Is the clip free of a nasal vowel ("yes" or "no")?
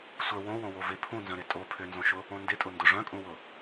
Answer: no